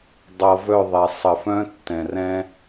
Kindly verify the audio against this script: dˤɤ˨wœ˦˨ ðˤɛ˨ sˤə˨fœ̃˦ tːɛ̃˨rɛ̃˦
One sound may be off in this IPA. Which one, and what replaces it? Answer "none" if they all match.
w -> v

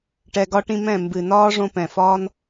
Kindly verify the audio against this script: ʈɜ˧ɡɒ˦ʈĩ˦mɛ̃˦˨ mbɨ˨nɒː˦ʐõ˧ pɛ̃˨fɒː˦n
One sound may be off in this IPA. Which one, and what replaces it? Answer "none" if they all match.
ɜ˧ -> ɛ˧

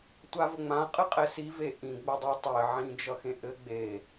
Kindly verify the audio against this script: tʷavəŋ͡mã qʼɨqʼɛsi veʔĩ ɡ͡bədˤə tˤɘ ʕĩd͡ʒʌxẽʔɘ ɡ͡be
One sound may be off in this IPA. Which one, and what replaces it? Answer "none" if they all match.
none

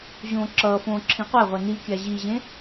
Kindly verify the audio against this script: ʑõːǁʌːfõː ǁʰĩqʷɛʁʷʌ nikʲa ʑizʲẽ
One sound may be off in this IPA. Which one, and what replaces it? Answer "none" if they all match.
zʲ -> ʑ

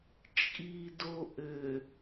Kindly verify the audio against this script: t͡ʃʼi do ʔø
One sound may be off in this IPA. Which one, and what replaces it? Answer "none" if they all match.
none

